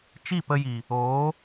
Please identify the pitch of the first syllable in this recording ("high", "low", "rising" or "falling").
falling